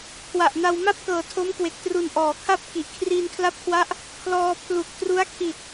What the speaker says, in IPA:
kʰwa˨˩ʔna˧w ma˥˩p̚kɤː˨˩ tʰo˦˥mkwe˨˩k̚ tru˨˩nʔɔː˩˦kʰa˥˩p̚ ki˨˩ʔkʰriː˧nkʰla˦˥p̚kʰwa˦˥ʔ | kʰlɔː˧ pʰlu˨˩k̚tru˦˥a̯kʰi˨˩t̚

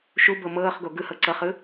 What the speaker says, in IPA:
ʃubɤ mɤːχɡo ɡɯhɤ ǀɤχɯ

